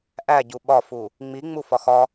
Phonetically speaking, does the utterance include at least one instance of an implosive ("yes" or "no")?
yes